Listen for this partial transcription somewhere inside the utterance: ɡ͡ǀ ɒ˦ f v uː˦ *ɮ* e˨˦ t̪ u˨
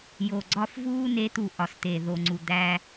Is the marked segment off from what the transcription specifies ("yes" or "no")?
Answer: yes